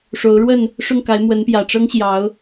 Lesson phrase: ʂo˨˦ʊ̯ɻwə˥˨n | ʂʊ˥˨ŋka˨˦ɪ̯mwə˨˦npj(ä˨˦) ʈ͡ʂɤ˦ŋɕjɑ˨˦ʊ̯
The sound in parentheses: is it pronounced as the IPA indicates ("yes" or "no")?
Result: no